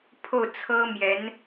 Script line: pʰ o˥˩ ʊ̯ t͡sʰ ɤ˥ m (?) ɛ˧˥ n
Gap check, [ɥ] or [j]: j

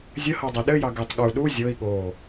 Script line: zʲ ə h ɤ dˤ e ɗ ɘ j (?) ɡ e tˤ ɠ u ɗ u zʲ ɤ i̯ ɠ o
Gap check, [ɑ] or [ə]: ɑ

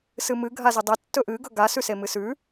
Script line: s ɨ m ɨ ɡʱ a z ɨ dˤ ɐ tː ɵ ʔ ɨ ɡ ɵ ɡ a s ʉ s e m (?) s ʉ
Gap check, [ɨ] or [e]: ɨ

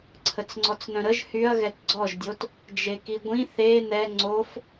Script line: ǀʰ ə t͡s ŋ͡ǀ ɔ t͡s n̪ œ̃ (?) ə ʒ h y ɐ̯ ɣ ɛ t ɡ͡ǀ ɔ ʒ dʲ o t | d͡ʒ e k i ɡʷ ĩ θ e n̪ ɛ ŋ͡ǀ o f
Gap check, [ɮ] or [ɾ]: ɾ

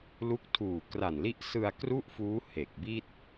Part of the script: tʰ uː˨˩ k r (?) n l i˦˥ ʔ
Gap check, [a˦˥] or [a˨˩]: a˨˩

